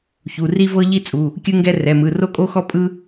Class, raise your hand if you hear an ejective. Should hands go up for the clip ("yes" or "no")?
yes